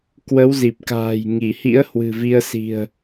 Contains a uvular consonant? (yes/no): no